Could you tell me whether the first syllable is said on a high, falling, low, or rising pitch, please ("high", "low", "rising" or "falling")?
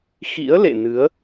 rising